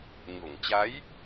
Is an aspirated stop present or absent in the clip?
absent